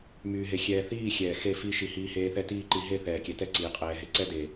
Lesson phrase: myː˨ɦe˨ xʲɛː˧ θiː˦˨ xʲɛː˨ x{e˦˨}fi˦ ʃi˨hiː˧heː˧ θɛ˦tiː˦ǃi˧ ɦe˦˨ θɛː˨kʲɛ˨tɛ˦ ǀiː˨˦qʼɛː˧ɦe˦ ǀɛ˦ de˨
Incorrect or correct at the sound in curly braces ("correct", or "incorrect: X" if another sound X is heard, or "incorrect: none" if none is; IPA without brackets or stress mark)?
correct